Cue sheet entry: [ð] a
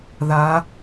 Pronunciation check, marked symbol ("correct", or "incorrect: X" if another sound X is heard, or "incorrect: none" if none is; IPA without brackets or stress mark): correct